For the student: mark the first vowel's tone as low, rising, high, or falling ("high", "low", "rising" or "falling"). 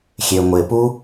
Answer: low